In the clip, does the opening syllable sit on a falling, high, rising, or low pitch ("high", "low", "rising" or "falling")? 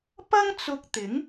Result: high